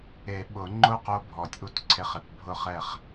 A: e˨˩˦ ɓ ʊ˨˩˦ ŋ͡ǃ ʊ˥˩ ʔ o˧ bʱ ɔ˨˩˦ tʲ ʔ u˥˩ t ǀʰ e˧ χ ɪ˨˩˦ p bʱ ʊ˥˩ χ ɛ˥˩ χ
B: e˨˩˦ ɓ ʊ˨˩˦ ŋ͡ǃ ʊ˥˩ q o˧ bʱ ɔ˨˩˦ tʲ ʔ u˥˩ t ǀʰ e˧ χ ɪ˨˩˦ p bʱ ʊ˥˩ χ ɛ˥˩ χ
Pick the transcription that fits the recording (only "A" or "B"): B